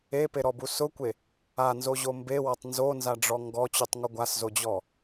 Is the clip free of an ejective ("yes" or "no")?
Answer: yes